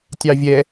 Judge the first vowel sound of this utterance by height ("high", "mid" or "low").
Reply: low